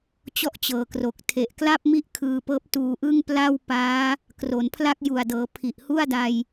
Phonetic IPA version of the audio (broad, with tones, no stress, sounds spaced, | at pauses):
t͡ɕ ɔ˥˩ ʔ t͡ɕ ɤː˨˩ k r o˨˩ k̚ tʰ e˨˩ ʔ k l a˥˩ p̚ m i˥˩ ʔ kʰ ɯː˧ p ɤː˦˥ p̚ t uː˧ ʔ ɯ˥˩ ŋ p l a˥˩ w p aː˦˥ | k r o˩˦ n pʰ l a˥˩ k̚ j u˨˩ a̯ d ɤː˩˦ pʰ i˨˩ ʔ h u˥˩ a̯ d a˧ j